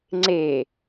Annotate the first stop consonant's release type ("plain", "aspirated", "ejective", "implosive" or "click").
click